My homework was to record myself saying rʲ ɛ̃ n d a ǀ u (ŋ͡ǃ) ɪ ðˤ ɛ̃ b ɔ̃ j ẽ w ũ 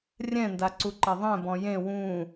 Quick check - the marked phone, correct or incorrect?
incorrect